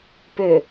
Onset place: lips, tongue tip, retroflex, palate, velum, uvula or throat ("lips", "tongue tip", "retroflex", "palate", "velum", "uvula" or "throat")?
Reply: lips